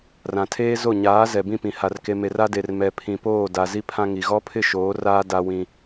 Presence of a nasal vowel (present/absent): present